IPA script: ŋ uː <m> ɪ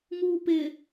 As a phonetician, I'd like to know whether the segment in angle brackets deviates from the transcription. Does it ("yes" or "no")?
yes